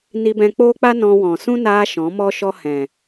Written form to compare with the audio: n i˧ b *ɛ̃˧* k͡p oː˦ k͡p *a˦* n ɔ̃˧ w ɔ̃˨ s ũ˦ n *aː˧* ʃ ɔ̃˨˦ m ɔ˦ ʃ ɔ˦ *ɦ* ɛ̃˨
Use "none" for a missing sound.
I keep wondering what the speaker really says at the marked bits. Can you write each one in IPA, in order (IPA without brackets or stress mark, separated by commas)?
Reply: ɛ̃˧, a˦, aː˧, h